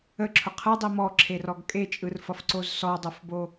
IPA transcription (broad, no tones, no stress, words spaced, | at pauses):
əǁʰʊ qʰɯdˤi mɔǁʰerɔɡ kʼet͡ʃʼɯrfʌfǀoz sɔdˤofbo